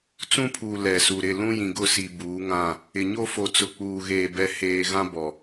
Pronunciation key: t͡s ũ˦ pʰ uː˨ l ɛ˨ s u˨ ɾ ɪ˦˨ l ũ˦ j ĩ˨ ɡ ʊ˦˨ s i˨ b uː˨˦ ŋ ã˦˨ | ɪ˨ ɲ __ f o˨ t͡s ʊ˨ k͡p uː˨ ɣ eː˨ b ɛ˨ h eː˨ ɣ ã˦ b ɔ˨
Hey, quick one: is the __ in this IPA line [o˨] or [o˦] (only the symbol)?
o˦